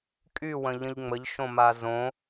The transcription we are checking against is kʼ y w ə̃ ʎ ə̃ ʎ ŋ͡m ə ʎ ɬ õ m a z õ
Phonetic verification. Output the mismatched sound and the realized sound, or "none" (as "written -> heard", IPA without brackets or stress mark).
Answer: ɬ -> ʃ